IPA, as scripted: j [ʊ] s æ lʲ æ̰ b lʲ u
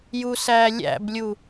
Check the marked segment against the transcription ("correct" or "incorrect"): incorrect